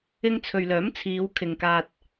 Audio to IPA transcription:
ɪ˧ŋt͡sʰɵ˨ɥlœː˨˥mt͡sʰiː˨˧w kʰɪ˨ŋkaː˧t̚

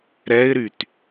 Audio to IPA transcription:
ɾɛɪ̯ɾyt

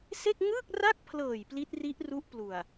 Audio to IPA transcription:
se˥˩k̚ ŋɯː˥˩k̚ra˥˩k̚pʰlɤː˨˩j pli˦˥t̚ri˦˥ʔru˦˥ʔplu˨˩a̯

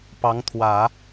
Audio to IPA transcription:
pɑ˧˥ŋt̪ʰwä˨˩˦

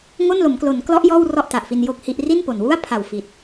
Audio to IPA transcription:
ŋo˥˩nlo˩˦mklo˩˦nklɔ˦˥ʔ jɔː˥˩wrɔ˥˩ʔ ta˨˩ʔfi˧njo˥˩k̚hi˥˩ʔ ri˥˩n po˨˩n wu˥˩a̯pʰa˨˩w fi˨˩t̚

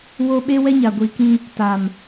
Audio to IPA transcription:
wo˦ ɓe˦wɛ˦ɲa˨ ɡʷi˨kĩ˦ | ta˨m

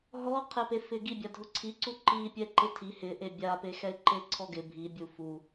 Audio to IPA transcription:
ɦɔqʰepe fɪɡi bʲadʱʊǀʰiǀu ǃipʲɛ ǃɪtʰi hɪʔe bʲape xɛɪ̯ǃeǀʰɔɡɪ bʱibʲu fu

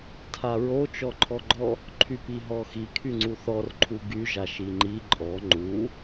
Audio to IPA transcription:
tʰaɹo t͡ʃɔǃʰɔɡ͡ǃɔ | ǃʰypiɦɔxi kʰyŋ͡ǀuθɔr ǃʰuɡy ʒaʃiŋ͡ǃi ǃʼɔ ŋ͡ǃu

